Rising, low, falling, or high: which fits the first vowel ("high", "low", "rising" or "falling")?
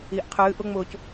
low